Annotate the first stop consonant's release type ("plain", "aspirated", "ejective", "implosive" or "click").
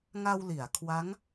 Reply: aspirated